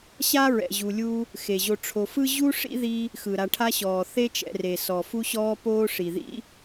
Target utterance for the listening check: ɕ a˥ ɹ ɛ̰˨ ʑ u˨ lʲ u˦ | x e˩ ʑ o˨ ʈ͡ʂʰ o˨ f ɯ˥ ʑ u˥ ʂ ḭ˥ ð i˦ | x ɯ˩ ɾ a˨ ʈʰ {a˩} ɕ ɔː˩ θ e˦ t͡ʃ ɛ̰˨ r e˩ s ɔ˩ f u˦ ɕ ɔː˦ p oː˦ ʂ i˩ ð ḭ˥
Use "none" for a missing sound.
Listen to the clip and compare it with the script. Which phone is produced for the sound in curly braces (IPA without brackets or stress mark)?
a˦